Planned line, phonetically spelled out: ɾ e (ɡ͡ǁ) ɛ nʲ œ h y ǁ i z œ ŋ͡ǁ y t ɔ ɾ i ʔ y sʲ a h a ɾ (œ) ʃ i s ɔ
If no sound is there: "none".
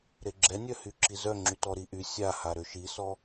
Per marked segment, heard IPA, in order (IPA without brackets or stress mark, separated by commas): ɡ͡ǁ, ø